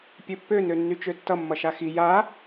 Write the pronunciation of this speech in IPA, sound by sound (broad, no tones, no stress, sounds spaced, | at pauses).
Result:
pʲ ø pː ø n ø nː y t͡ʃ ø tː ʌ mː ʌ ʃ a x i j a